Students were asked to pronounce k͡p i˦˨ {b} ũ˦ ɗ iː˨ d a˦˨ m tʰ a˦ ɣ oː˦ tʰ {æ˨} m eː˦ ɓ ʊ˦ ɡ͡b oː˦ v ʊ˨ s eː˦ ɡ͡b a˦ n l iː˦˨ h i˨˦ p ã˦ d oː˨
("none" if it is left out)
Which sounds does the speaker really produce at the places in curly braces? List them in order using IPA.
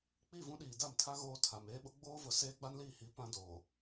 v, a˨

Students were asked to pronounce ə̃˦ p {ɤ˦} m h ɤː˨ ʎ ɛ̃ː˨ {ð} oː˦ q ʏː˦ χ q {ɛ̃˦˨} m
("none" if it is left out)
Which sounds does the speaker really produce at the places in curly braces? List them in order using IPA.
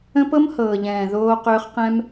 ɤ˦, ð, ɛ̃˦

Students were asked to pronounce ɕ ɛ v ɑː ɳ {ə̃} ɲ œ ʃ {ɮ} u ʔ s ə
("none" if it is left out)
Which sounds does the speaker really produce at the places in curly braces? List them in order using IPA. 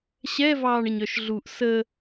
ə, ɮ

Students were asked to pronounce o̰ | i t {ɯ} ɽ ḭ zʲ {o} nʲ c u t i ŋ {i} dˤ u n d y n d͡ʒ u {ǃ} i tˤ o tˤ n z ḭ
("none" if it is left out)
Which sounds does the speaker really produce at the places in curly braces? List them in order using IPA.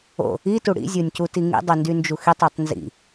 u, o, ḭ, x

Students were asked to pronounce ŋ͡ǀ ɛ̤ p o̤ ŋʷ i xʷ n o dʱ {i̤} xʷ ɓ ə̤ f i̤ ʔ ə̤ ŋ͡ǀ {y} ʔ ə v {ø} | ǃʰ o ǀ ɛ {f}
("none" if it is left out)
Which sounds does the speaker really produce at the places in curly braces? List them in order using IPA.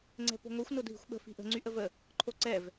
i̤, y, ə, v

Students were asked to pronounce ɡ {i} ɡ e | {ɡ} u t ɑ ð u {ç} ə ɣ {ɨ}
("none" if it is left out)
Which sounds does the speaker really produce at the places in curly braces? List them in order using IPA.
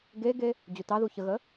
e, d͡ʑ, ç, ə

